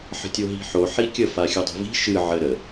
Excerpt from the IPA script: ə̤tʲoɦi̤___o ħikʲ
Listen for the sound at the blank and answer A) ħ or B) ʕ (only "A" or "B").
A